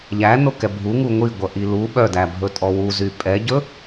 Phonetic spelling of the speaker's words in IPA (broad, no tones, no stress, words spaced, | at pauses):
ʎænokɛ bʱuŋu ŋʷiɡʷœ ʔilu ɓœdæbʱɵ tʼɔwu zypʼɛɟɵ